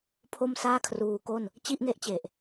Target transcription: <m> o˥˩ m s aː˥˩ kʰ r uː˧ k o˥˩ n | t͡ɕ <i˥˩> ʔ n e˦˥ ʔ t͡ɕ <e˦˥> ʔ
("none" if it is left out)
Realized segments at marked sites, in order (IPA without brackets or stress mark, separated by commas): pʰ, i˥˩, e˨˩